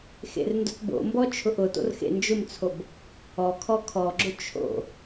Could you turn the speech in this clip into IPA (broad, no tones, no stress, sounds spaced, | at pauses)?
x ḛ r n d ʊ t b o̰ m b ɔ t͡ʃʰ ʊ ʔ ʊ t o̰ r x ḛ n d͡ʒ ʊ m t͡sʰ o b | ɔ kʰ ɔ kʰ ɔ ɡ͡ǁ ʊ t͡ʃʰ o̰